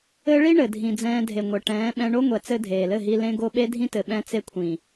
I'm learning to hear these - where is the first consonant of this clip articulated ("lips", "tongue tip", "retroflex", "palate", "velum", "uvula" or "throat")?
retroflex